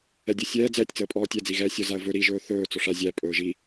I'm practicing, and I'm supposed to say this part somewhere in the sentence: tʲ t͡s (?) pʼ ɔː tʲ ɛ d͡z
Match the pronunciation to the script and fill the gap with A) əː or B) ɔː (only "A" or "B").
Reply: A